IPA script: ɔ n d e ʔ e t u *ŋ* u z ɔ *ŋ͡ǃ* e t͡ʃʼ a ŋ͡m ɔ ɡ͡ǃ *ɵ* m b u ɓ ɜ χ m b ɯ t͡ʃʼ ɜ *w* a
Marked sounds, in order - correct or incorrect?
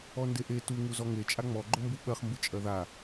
correct, incorrect: ŋ, incorrect: ʊ, incorrect: ð

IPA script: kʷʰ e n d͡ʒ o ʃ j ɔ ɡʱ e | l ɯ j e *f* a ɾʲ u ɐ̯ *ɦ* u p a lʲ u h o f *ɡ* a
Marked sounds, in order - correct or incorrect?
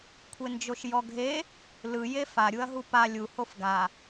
correct, correct, correct

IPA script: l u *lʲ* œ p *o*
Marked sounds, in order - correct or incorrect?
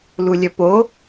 correct, correct

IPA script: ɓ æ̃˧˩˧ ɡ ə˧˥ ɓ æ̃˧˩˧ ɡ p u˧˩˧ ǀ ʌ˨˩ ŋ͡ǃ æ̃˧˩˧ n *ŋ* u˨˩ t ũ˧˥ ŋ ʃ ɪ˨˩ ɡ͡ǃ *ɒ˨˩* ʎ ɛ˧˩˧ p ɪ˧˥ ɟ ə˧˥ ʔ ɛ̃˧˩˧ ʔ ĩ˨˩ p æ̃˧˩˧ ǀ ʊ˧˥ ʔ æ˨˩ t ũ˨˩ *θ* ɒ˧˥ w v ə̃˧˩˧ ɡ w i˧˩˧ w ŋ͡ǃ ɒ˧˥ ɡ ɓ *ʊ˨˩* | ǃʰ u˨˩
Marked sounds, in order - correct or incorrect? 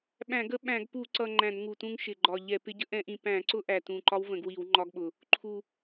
correct, correct, incorrect: ǃ, correct

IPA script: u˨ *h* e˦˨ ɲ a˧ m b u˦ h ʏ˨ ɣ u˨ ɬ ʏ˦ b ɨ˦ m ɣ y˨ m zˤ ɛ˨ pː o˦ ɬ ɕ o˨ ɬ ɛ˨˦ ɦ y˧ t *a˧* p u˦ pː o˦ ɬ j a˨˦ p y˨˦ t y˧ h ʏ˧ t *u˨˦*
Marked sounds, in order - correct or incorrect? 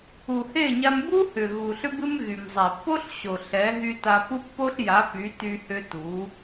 correct, correct, correct

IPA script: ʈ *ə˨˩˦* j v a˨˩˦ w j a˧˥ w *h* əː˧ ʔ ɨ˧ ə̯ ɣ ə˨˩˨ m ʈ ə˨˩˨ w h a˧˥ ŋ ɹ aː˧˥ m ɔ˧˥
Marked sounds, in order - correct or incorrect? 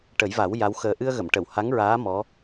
correct, incorrect: x

